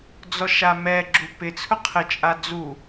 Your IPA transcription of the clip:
d͡z ɔ ʃ a m ɛ ɡ͡ǁ u p ɪ t͡sʰ ʊ qʰ ɪ t͡ʃʼ a d͡z u

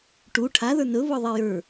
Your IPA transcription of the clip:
ʈ u ʈʰ a ð ə˞ n ɵ β ɵ ðˤ e j ə˞

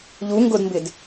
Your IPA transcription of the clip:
ʎ u ŋ ɡ ʊ d m b ɪ d

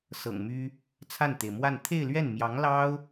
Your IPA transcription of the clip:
s ɤ̰˨˩ ŋ m y˥ | t͡sʰ a˥˩ n t̪ e˩ ɪ̯ m w a˥˧ n t̪ʰ e˥˧ ɪ̯ l ɥ ɛ˥˩ n m j ɑ˧˥ ŋ l ɑ˥ ʊ̯

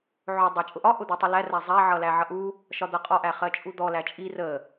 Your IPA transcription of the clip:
ʕ ʊ dˤ æ t͡ʃʼ ʊ ʔ ɒ ʔ ʊ d̪ ɜ tˤ ə l æ r æ zˤ æ ʕ ʌ l æ ʕ ʌ ʔ u | ʃ ɒ d̪ ʌ qʼ ɒ ʔ æ χ ɜ t͡ʃʼ u d̪ ɔ l æ t͡ʃʼ i r ə

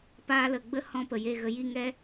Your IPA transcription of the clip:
p aː˧ l ə˨ ɡ͡b ə˦ h ɔ̃˧ p ə˨ j e˦˨ ɣ ə˧ j i˦˨ ŋ ɛ˦

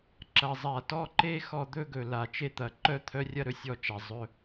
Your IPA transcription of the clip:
ǁ ɐ˨ zˤ a˨ t ɔ˦ ǃ e˦ x ɔ˦ d̪ ɵ˦ ɡ ɵ˨ l a˨ t͡ʃ e˦˨ t̪ ɐ˨ ǃ œ˦ t̪ʰ œ˦ rʲ ɐ˦ ɾ ɵ˨ sʲ ɔ˦ t͡ʃ a˨ zˤ ɵ˦

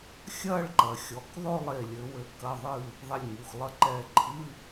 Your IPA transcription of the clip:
xʲ ɐ˥˧ ɭ ǃ ɐ˩˧ xʲ ɔ˩˥ k ðˤ o˥˧ lˠ e˧˩ lʲ ɘ˩˧ w ɘ˩˧ k ɐ˩˧˩ ðˤ ɨ˧˩ | ðˤ e˧˩ lʲ ŋ u˩˧˩ x lˠ ɐ˧˥˧ ǃ ɛ˧˩ ǃʰ ɨ˧˥˧

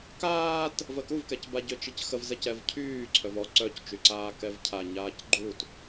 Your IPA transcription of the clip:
k aː t | v ə k u v k ɛ c b a ɟ ø t͡ʃ i c x ə v z ɛ c ɛ v cʰ yː ǀʰ œ v ɔ ǀ œ c t͡ʃ y ǀ aː k ɛ v cʰ a ɲ aː c ɡ͡ǃ u t

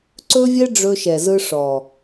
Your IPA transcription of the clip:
ǀ ɵ˦ vʲ ɛ˦ ɖ͡ʐ ɵ˦ ʃ ɛ˨ z ɯ˦ ʂ ɔ˨

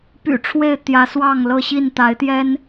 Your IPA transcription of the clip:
p y̰˨˩ ʈ͡ʂʰ w e˥˨ ɪ̯ t̪ j ä˨˦ s w ɑ˥˨ ŋ l ɤ˥˨ ɕ i˥˨ n t̪ a˨˦ ɪ̯ t̪ j ɛ˦ n

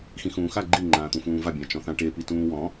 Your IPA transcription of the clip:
x ĩ x ũː x a ɡ͡ǃ i ŋ͡ǃ ãː t̪ ũ f ũː v a bʲ ã t͡ʃ ɔ̃ θ ã ʈ e p i t ũː w ɔ̃

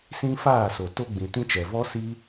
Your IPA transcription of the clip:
s ĩ˦ f aː˦˨ s o˨ t o˧ ɡ͡b ĩ˨ t ĩ˧ t͡ʃ ɛ˨ v ɔ˦ s i˦

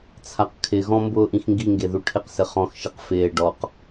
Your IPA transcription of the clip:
t͡sʰ a q kʰ ɪ ɣ ɔ̃ m b ʊː ʔ ĩ x ŋ ɡ i ŋ ɡ e ð u ʈʰ ɪ q s ɪ χ ɔ̃ x ʃ i q f ɪː ɖ ɔ q

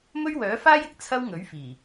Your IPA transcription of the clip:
m ɵ˥ ɥ w œː˨˥ f aː˥ j ɪ˨ k̚ t͡sʰ ɐ˥ w ŋ ɵ˨˥ ɥ f iː˨˩

